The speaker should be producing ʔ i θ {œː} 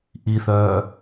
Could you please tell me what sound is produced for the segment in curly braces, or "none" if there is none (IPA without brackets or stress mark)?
œː